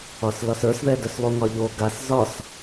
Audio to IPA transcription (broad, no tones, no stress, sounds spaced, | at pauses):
ɒ s l ɒ s ə˞ s ð ɛ d œ s lˠ u ŋ ɒ ʎ o ɡ a s z ɒ s